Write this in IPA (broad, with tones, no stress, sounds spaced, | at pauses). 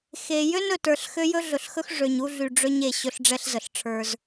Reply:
x e˨ j ø˦ n ɵ˨ t ə˞˨ ɬ x ø˦ j ɵ˦ ɮ ɵ˨ ɬ x ɵ˦ x ʐ ø˨ ɲ u˦ ɮ y˨ ɖ͡ʐ ø˦ ɲ e˨ ɕ ɵ˦ ɬ ɖ͡ʐ ɛ˦ ɬ z ə˨ ɬ ʈ͡ʂʰ ə˞˦ z